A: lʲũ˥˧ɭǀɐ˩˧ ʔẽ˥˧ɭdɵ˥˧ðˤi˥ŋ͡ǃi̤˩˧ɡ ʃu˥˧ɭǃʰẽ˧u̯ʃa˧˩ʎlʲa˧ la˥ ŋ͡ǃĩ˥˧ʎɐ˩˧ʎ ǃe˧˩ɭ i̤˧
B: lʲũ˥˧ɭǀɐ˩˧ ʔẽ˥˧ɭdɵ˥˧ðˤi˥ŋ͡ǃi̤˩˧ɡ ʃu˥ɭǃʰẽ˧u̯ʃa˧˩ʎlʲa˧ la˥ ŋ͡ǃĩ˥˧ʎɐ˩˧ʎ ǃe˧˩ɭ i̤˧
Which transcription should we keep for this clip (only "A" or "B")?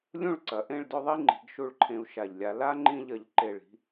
A